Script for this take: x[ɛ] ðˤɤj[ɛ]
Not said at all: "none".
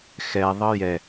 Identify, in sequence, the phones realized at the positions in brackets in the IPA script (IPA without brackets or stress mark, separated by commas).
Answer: ɛ, ɛ